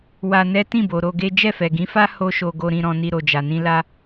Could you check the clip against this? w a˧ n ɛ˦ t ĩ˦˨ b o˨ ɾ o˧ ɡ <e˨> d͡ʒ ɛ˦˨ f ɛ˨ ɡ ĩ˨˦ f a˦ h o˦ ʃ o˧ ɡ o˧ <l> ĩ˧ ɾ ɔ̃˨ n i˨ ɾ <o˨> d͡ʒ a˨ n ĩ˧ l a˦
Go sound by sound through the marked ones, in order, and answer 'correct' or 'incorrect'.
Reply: incorrect: e˦, incorrect: ɾ, correct

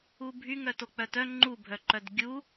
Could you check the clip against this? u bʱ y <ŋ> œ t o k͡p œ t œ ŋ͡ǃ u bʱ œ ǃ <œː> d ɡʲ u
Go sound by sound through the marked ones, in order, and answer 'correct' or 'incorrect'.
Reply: correct, incorrect: œ

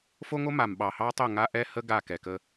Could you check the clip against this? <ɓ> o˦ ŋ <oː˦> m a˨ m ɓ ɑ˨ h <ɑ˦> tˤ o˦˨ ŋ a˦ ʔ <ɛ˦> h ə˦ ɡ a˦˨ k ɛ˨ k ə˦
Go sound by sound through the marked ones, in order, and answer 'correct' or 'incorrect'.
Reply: incorrect: f, incorrect: o˦, correct, correct

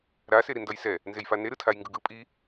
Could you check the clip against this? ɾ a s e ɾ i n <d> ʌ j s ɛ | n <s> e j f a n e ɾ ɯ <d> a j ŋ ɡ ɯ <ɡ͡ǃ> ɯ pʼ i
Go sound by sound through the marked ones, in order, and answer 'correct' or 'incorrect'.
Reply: correct, incorrect: z, incorrect: tʰ, incorrect: ɡ

